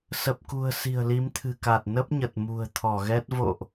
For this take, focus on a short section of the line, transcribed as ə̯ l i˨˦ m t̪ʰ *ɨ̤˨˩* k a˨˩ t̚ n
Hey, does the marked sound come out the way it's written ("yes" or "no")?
yes